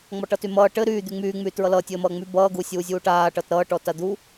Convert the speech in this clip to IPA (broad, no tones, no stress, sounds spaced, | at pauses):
ŋ͡m ɔ ʈ ʌ t y m ʌː ʈ ɘ ɾ yː d̪ y ŋ͡m yː ŋ͡m yː t ɹ ʌ l ʌː tʲ ɘː m ʌː ŋ͡m y b ʌː ɡ u sʲ uː zʲ uː ʈ aː ʈ ʌ t ɾ ʌː ʈ ɔ t a d̪ u